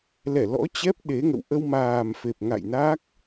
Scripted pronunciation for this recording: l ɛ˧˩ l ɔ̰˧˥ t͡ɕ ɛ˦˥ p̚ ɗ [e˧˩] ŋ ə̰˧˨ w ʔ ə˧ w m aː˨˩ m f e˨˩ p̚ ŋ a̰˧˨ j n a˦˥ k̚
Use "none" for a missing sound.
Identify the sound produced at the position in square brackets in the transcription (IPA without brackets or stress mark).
e˨˦